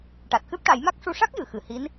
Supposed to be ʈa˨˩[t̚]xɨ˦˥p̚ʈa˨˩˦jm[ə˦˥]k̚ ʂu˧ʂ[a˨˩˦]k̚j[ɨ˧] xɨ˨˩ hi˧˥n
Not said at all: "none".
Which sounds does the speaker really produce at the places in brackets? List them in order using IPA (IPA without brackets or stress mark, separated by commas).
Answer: t̚, a˦˥, a˦˥, ɨ˨˩˨